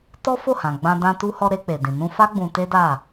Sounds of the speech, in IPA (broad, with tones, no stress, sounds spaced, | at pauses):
t ɔ˦ f o˦˨ h ã˨ ɡ͡b ã˧ d ã˧ t u˧ h ɔ˧ ɾ e˧ k͡p e˨ d ĩ˨ n ũ˧ f a˦ ɡ͡b ũ˧ t e˦ d a˦˨